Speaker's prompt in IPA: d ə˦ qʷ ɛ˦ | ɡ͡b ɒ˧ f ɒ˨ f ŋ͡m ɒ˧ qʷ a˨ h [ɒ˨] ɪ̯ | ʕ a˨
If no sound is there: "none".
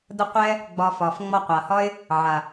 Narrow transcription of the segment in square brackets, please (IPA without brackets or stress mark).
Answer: ɒ˦